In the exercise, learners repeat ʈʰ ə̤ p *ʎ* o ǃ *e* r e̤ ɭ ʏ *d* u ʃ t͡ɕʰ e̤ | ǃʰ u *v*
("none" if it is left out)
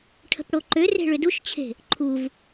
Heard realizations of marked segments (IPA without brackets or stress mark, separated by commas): ɽ, ø, d, v